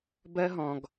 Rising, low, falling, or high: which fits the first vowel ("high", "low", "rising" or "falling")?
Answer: high